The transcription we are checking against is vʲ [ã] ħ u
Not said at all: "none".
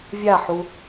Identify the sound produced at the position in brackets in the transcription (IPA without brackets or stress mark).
a